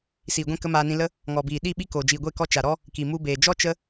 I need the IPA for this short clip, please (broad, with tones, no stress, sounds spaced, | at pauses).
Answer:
s iː˨ ɡʷ ɛ̃˦˨ k ə˦ m aː˧ n ĩ˧ l ə˦ | ŋ ɔ˨ b iː˨ ɗ i˦˨ ɓ i˦ k oː˨ d͡ʒ iː˨ ɡʷ e˦˨ k ɔ˧ t͡ʃ a˨ ɾ ɔ˦ | k i˨ m u˧ b eː˨ d͡ʒ ɔ˦ t͡ʃ ə˦